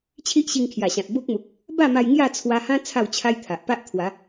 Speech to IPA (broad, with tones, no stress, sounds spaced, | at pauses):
t͡ɕʰ i˦ ʔ ɕ i˧ ŋ kʰ j a˨˩ ɕ ã˨ t̚ b o˦ k̚ m u˨ k̚ | b a˥˧ m a˧ j ŋ j a˥˧ t͡sʰ w a˧ h ã˦ t͡sʰ a˥˧ w t͡ɕʰ a˦ j t̪ʰ a˨ ʔ p a˦ ʔ t̪ʰ w a˨˦